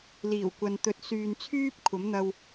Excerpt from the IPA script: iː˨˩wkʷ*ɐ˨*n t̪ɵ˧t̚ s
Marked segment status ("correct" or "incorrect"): correct